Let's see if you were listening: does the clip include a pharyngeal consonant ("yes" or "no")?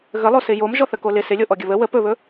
no